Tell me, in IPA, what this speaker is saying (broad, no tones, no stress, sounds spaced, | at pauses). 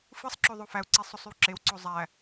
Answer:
f ɯ sˤ ǁ o ðˤ o f æ u̯ ǀ i sˤ o sˤ y w ǁ e w ǀ o zˤ æ